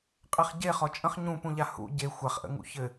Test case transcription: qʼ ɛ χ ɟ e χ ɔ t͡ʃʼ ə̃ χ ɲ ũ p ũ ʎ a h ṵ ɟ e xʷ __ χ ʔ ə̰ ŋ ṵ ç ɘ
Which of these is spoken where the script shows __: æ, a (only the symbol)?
a